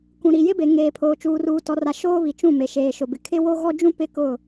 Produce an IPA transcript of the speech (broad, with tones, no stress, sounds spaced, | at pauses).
k ũ˨ ɾ i˨ j ɪ˦ b e˨ ŋ eː˨ pʰ oː˨ t͡ʃ uː˨ r uː˨ t ɔ˨ r a˨ ʃ oː˦ β i˨ t͡ʃ ũ˦˨ m e˨ ʃ eː˨ ʃ ʊ˨ b ɪ˨ kʰ ɪ˦ w o˦ ɣ ɔ˦ d͡ʒ ũ˦ p ɪ˦ k ʊ˦˨